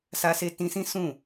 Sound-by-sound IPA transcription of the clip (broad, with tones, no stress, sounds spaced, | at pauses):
s a˧ s e˧ t ĩ˧ s ĩ˦ s ũ˦˨